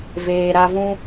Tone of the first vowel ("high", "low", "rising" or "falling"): low